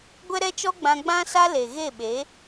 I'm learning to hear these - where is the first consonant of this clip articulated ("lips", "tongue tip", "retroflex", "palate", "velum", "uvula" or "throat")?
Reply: velum